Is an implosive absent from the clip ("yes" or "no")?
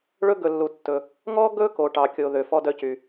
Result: yes